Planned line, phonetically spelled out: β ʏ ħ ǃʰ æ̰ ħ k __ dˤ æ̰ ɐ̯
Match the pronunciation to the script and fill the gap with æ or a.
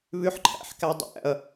æ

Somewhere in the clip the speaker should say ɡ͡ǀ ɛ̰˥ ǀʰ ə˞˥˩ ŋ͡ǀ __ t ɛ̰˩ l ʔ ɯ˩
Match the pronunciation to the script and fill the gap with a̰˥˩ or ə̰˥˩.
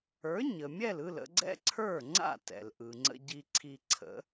a̰˥˩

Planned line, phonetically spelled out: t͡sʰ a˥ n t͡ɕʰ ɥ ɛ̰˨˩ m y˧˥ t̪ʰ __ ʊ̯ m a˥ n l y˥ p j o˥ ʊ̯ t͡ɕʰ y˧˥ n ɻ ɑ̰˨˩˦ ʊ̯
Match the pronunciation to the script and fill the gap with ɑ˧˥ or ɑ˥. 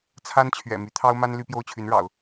ɑ˥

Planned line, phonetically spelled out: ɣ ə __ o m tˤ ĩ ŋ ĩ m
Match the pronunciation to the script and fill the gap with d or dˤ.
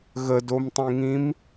d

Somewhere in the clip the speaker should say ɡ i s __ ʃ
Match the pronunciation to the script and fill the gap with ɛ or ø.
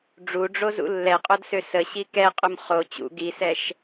ɛ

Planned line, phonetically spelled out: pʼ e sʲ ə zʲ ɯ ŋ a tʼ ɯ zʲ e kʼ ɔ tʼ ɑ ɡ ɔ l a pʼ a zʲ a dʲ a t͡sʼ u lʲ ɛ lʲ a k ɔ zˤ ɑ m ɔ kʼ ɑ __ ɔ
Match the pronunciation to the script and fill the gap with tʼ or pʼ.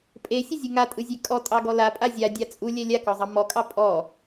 pʼ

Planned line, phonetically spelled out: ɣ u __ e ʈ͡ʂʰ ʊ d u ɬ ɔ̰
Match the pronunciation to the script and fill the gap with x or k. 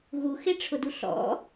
x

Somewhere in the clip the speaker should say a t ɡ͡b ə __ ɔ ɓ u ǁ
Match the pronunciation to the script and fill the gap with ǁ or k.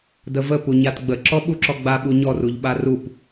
ǁ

